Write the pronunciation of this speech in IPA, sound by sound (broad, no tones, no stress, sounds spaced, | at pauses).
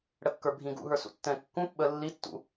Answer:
ɽ ə kː ə˞ bʱ ĩ ɡ ṵ ɦ ə˞ s ṵ tː ɛ̃ kː ũ p ɓ ə lː i tː ṵ